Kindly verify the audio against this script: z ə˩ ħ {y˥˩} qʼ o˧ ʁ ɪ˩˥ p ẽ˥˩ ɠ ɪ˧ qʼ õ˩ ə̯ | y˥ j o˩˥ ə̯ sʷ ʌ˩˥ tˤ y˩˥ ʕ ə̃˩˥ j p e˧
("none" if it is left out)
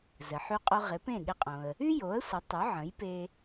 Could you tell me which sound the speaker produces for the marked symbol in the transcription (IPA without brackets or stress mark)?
y˧